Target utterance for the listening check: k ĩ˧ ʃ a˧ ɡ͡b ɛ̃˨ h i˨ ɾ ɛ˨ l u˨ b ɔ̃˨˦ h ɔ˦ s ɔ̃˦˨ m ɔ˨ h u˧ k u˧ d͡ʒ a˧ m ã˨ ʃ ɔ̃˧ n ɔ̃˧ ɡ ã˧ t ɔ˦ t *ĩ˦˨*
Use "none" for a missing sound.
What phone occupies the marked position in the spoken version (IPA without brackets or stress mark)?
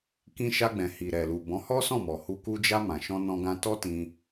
ĩ˧